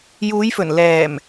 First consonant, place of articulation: palatal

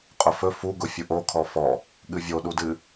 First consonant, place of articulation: uvular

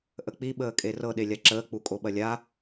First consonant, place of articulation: glottal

